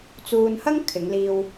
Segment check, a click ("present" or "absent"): absent